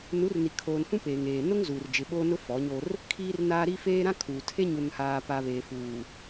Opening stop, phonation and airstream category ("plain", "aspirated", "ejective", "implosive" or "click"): aspirated